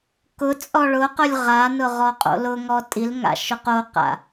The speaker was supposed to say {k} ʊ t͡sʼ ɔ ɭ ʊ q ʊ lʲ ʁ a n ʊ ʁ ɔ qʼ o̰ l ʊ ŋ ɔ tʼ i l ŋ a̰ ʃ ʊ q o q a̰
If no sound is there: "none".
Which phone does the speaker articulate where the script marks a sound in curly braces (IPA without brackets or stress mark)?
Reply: k